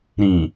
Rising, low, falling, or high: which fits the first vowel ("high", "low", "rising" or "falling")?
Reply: low